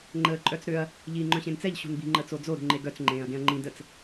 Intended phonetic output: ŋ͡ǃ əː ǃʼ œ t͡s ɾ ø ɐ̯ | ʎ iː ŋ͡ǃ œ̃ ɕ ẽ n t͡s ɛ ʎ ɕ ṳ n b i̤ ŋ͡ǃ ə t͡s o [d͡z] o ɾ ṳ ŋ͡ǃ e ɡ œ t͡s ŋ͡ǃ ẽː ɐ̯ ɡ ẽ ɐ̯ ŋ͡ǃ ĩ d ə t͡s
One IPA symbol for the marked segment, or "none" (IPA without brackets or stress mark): d͡z